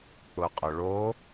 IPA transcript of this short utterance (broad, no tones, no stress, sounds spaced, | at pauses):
k͡p ʊ qʼ ʊ ɭ o